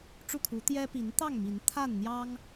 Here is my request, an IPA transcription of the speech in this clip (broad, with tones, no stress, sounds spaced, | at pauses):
ʈ͡ʂ u˥˨ kʰ u˨˦ t̪ j ɛ˦ p i˨˦ n t̪ ɑ˥˨ ŋ m i˨˦ n t̪ʰ a˥˨ n n̪ j ɑ˦ ŋ